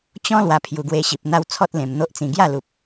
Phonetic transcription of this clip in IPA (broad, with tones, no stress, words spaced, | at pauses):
t͡ɕɔ̃˦ lwa˧pʰju˨˩ɡwe˧ɕi˨p̚ n̪a˧w t͡sʰɔ˦t̚lẽ˨˩m n̪o˦ʔt͡sĩ˧ ɡja˥˧lu˨p̚